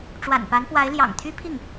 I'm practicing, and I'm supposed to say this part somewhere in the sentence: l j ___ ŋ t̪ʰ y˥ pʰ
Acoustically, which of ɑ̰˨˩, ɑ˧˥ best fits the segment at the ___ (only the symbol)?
ɑ̰˨˩